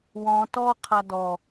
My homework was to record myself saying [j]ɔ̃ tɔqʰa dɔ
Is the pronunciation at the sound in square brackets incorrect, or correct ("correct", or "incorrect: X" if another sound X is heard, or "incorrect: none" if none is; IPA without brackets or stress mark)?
incorrect: w